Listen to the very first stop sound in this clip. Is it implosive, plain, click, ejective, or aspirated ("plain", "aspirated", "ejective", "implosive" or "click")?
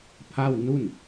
aspirated